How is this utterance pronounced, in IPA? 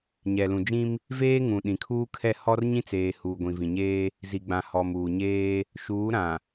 ɲɛ˨lũ˨d͡ʒĩ˦m | veː˦ŋũ˨ ɗĩ˨kʰuː˦ kʰɛ˦˨hɔ˦rɲĩ˦t͡seː˨ huː˨ɡʷĩ˨vĩ˨ɲeː˦ | zi˨ɡ͡bã˨ hɔ˨muː˨ɲeː˦ | ʃuː˨˦ɾã˨

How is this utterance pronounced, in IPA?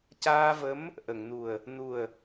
caː˧və˧˥m | ʔə˨˩˨ŋnu˨˩ə̯ | nu˨˩ə̯

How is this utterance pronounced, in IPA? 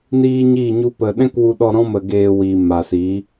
niː˦ɲi˦˨ɲu˦pə˧ ɗɛ̃˦kwu˧ɗɔ˧ ɾɔ̃˦mə˧ɡeː˧wiː˨ ma˨siː˨˦

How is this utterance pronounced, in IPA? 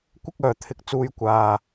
kʷɪ˥k̚œː˨t̪ʰɪ˨k̚t͡suː˧j kʷaː˨

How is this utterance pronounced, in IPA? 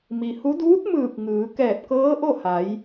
mi˩hu˧˥ duː˧˥t̚mɯː˧˩k̚ ŋɯː˩˧ kɛː˧˩t̚kɤː˧˥ʔo˥˨ ha˩˧j

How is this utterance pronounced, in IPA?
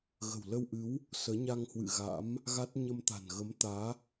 ɣə̤˨˩wlə˧wʔɨ˨˦w | səː˨˦ɲa˧ŋhwɨ̰˧˨ɣa̰˧˥m | ɣa˦˥t̚ ɲə˧mt̪a̤˨˩n ɣə˨˦m t̪aː˨˦

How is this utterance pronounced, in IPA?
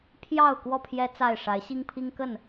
pʰjɑ˥˨ʊ̯ kwɔ˥˨pʰjɛ˦ t͡sa˥˨ɪ̯ ʂa˨˦ɪ̯ɕi˦ŋpʰi˦ŋ kə˥˨n

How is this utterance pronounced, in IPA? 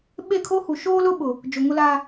ɓe˦˨kʰo˦hu˨ ʃoː˦lʊ˦ɓʊ˨ | d͡ʒo˨ŋʊ˦laː˦

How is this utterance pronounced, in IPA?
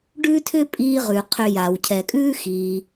ɖʉː˥tʰʏ˥ pʼiː˥ʁʉ˩qʰʏ˧ja˩w cʰɛ˩kʼʉː˥xiː˩

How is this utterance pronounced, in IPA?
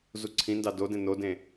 zuǀʰĩndɑ dodẽ nodẽ

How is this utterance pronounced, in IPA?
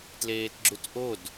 tleːtɡ͡ǁutʔod

